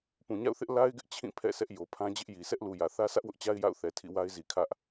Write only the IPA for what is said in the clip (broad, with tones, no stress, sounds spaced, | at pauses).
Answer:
p ũ˨ ɲ a̰˦˨ ʊ̯ θ ɪ˦ ʔ l a˦ ɪ̯ ɡ ɪ˦ ʔ t͡ɕʰ ĩ˦˨ pʰ ɛ̰˦˨ sʰ ɛ˦ ʔ j o˨ pʰ ã˦ d͡ʑ ɪ˦ ʔ j i˨ sʰ ɛ˦ ʔ l u˨ j ä˨ θ ä˦ sʰ ä˦ ʔ w ʊ˦ ʔ t͡ɕ a˦ ɪ̯ j a̰˦˨ ʊ̯ θ ɛ˨ tʰ ḭ˦˨ w a˦ ɪ̯ z i˨ kʰ ä˦ ʔ